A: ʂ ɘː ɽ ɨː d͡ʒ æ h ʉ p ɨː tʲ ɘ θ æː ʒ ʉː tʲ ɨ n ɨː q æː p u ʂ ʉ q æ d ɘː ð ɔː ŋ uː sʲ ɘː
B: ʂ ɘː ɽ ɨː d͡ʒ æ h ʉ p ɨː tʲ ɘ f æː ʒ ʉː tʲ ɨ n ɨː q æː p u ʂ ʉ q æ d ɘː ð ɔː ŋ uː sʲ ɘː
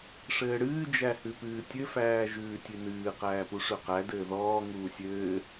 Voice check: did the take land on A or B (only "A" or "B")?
B